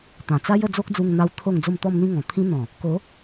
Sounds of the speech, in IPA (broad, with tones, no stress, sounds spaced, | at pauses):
t̪ ã˨˩ t͡s a˦ j ə˥˧ d͡z o˦ k̚ d͡z u˧ ŋ n̪ a˧ w t̪ʰ o˥˧ ŋ d͡z o˧ m t̪ ɔ˧ m n̪ ĩ˧ ŋ ɔ̃˨˩ t̪ʰ ĩ˦ n̪ ɔ̃˨˩ | k o˨˦